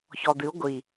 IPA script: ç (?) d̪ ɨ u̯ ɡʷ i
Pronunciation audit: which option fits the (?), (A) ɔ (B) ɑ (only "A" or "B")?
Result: A